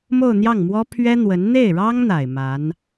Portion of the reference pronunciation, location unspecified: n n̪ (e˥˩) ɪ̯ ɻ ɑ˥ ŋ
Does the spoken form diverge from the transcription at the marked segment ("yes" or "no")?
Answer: no